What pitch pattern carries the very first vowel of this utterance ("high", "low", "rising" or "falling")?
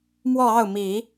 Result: falling